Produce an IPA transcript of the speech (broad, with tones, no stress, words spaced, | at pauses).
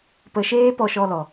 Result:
pə˧ʃeː˦ pɔ˧ʃɔ˧lɔ˨